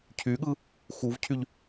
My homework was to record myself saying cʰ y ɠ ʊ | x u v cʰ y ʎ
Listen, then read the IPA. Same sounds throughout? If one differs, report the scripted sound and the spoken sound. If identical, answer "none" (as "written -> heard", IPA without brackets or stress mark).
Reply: ʊ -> ɯ